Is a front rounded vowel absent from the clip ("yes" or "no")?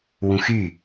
no